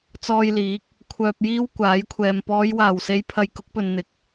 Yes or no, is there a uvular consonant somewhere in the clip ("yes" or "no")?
no